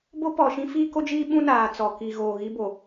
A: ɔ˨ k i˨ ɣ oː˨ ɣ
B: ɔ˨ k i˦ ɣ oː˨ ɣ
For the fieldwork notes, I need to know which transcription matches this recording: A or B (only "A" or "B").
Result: A